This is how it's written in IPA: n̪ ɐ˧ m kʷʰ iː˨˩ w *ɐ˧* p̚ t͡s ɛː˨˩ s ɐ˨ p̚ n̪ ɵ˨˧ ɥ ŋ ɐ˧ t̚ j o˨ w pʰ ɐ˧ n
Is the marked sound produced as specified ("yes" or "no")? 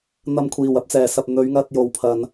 yes